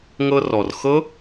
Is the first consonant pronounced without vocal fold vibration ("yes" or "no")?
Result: no